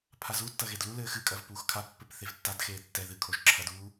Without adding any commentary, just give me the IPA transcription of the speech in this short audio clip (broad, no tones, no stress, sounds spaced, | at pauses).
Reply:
pʰ a z u tː ɐ ɣ e d l u l ɘː x ɨ kʼ ɐ v p uː x kʰ a pː ɘ p θ e v tː a d x eː tː ɛ ð ɨ kʰ o ʒ ǁʰ ɐ d uː